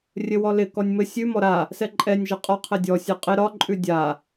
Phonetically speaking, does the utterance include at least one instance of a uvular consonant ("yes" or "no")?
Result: yes